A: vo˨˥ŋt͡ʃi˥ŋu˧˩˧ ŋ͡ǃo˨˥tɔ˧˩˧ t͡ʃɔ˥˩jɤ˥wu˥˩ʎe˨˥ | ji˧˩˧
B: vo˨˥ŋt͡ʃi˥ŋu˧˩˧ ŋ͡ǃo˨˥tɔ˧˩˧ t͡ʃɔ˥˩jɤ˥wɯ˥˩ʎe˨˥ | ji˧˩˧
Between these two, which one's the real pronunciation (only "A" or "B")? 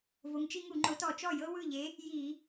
B